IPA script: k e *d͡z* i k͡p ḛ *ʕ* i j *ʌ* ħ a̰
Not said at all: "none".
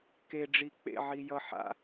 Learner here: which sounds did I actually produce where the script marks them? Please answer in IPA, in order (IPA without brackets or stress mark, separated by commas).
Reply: ɖ͡ʐ, ʕ, ʌ